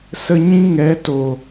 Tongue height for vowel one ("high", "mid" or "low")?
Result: mid